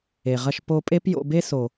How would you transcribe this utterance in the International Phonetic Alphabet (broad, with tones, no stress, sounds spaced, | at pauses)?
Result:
e˨ ʁ ɐ˧ ʃ p o˧ pʼ e˦ p j o̰˧ b e˦ s o˨